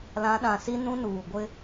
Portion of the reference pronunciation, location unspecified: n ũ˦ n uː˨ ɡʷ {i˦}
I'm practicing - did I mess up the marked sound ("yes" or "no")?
yes